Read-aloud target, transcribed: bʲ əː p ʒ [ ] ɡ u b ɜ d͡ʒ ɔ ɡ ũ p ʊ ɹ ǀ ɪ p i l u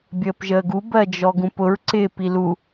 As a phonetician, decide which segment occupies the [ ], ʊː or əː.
əː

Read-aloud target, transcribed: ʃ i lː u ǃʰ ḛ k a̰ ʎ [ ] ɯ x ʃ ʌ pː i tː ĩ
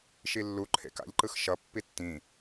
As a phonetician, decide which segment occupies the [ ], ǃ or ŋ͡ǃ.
ǃ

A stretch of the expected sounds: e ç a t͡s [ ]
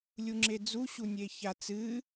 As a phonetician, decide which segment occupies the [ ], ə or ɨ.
ɨ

